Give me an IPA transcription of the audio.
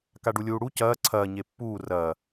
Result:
k a ɖ u lʲ uː ɽ u c ɐː ǀʰ ɐː ɲ e pː uː r ɐː

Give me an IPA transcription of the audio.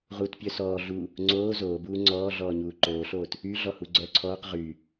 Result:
ʁ u t pʲ œ s ɔː ɮ u | ŋ͡ǀ oː z oː b uː ŋ͡ǀ ɔː ɮ ɔː ɲ uː ǃ oː ɬ oː t | y ɮ ɔ h u ɡ͡ǀ œː ǀʰ ɔː q ʁ yː

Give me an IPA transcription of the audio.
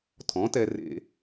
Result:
tʰ ɔ̃˩˥ t ɛ˧ r ḛ˧

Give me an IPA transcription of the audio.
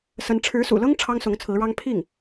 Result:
s ə˧˥ n ʈ͡ʂʰ ɻ̩˧˥ s ṵ˨˩ l ɤ˥ ŋ ʈ͡ʂʰ ɑ˥ ŋ s ʊ˧˥ ŋ t͡sʰ ɹ̩˧˥ ɻ ɑ˥ ŋ pʰ i˥˩ ŋ

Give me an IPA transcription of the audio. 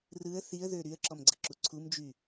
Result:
r ɯ ə̯ θ i ə̯ ð ø ɾ y ə̯ ǁ ɔ m ɡ͡ǀ ə ǁ u ǀʰ u m d͡ʒ y

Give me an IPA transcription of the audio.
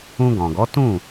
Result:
ũ˧ ɡ ɔ̃˨ ɡ ɔ˨˦ t ũ˦˨

